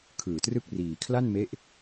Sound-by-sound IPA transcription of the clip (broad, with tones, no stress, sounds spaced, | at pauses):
kʰ ɯː˨˩ t r ɯ˥˩ k̚ r iː˨˩ kʰ l a˥˩ n m e˦˥ ʔ